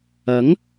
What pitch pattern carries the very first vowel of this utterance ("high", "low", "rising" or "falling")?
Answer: rising